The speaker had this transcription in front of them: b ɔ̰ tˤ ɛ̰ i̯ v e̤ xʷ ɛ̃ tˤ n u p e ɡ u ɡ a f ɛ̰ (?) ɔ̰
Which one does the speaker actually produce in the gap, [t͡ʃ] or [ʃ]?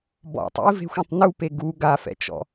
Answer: t͡ʃ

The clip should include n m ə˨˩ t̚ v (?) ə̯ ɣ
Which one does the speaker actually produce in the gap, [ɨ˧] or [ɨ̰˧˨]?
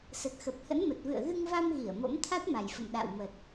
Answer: ɨ̰˧˨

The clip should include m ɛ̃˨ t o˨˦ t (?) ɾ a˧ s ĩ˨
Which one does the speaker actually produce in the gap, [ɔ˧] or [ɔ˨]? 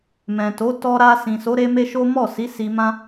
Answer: ɔ˧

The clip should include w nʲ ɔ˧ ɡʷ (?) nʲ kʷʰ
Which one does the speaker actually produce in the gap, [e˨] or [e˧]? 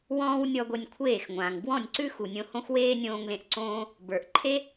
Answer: e˧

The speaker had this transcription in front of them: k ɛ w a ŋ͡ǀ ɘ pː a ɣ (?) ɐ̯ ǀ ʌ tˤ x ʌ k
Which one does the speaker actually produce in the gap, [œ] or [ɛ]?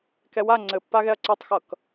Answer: ɛ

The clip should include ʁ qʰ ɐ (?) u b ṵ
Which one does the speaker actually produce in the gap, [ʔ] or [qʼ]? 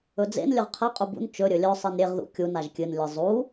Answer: qʼ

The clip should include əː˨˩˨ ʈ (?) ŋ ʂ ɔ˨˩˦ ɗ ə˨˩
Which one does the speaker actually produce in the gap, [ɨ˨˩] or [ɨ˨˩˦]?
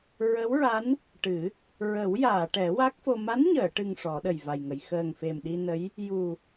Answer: ɨ˨˩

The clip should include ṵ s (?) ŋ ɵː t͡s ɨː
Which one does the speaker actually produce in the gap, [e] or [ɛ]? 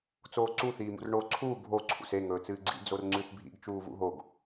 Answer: e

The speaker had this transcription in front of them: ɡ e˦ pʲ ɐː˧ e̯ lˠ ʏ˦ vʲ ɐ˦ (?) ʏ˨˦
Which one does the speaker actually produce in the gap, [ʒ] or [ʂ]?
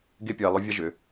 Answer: ʒ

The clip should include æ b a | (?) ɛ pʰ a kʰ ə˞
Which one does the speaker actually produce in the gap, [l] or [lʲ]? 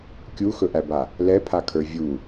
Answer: l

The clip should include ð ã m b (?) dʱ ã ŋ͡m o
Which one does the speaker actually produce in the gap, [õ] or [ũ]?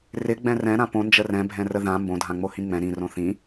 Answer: õ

